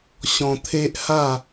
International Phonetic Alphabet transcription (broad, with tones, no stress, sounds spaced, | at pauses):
ɕ ɔ̃˧ t̪ʰ e˦ ʔ h a˥˧